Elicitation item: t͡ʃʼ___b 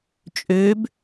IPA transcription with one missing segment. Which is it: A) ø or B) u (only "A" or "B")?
A